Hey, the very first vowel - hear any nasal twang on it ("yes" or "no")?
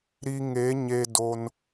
no